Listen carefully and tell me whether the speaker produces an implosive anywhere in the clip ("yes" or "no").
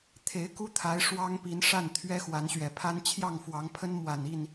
no